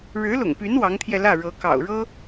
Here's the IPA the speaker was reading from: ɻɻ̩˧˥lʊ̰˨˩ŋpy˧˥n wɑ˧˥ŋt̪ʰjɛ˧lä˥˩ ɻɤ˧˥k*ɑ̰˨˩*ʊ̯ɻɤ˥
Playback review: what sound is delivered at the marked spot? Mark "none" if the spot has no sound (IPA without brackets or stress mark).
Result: ɑ̰˨˩